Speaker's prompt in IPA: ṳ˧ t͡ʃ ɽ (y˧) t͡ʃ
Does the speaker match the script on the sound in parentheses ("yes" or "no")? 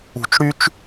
no